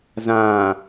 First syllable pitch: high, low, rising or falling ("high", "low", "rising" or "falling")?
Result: low